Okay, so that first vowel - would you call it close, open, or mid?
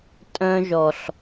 mid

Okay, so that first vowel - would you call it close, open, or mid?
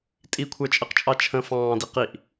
close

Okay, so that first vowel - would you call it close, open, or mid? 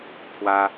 open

